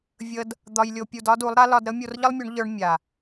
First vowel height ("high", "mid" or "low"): mid